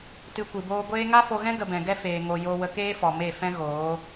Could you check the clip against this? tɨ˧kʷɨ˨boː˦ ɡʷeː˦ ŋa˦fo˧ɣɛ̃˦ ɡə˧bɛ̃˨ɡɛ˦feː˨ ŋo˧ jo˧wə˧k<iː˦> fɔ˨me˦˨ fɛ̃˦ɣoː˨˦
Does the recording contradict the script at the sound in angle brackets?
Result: yes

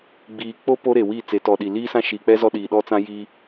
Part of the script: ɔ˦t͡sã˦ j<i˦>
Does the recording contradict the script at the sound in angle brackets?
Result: no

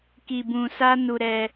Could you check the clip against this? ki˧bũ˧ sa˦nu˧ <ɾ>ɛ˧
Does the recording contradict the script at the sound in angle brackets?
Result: no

